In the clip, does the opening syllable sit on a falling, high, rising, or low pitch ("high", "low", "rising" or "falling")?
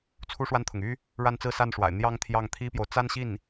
high